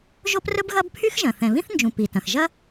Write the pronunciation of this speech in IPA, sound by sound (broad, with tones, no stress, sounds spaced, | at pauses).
ʒ o˥ p r ɵ˥ b ɣ ɐ˥ b pʰ y˥ x ʒ ɐ̃˩ θ ɛ̃˩ β ĩ˥ θ n d͡ʒ ũ˩ p i˩ t ɐ̃˩ x ʒ ɐ˥